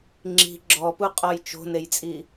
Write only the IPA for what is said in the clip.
ŋ͡ǁ i̤ ɡ͡ǁ ɔ p u qʼ ɔ j t͡ʃ o̤ n e j t͡sʼ i

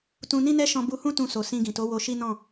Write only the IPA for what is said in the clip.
t ũ˧ n ĩ˦ n ɛ˦ ʃ ɔ̃˧ b u˧ h ũ˦ t ũ˧ s o˨ s ĩ˧ ɡ ĩ˨ t o˨˦ w o˧ ʃ i˦ n ɔ̃˦˨

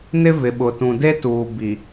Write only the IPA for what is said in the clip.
n ɪ˦ v ɪ˨ ɓ ʊ˨ t ũ˨ d e˦ t uː˨ b i˨

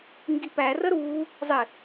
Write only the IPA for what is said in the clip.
ŋ ɡ i p æ r ə ɾ uː | zˤ ɪ

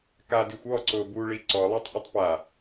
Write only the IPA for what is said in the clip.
k a d i xʷ ɔ ǀ ʊ b u ɭ i ǀ ɔ lˠ ɛ tˤ ʔ ʊ tˤ p a

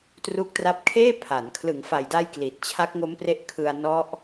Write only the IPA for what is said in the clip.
t r u˦˥ k̚ t r a˦˥ p̚ kʰ eː˥˩ pʰ a˩˦ n kʰ l ɯ˩˦ ŋ f a˨˩ j d a˧ j k l i˨˩ t̚ t͡ɕʰ a˦˥ k̚ ŋ o˦˥ m p r e˦˥ ʔ kʰ ɯ˧ a̯ n ɔ˦˥ ʔ

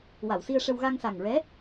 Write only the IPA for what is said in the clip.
w a˨˩˨ w s i˧ ə̯ ʂ ə˧ w ɣ a˧ ŋ s a˨˩ ŋ ɹ ɛ˧˥

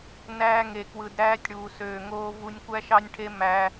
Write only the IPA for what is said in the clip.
n æː˦ ŋ e˨ k w ɯ˨ d ɾ æː˦ tʲ ɽ uː˨ s øː˨ ŋ oː˦ v u˦ nʲ kʷ æ˦ ʃ ɑ˦ nʲ ʈʰ e˦ m æ˦

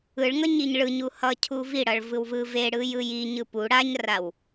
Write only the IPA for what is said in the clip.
ɯ ɭ ŋ ʌ ɲ i ɲ ɭ ɯ ɲ u h ʌ cʰ u v i ɽ ʌ ɭ v ɯ w v ɯ v e ɽ ɯ j ɯ j i ɲ ɯ p u ɽ a ɲ r a w

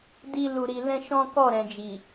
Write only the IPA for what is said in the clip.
d i˦ l u˧ ɾ i˧ l ɛ̃˦ ʃ ɔ̃˦ k ɔ˦˨ ɾ ɛ̃˨ d͡ʒ i˨

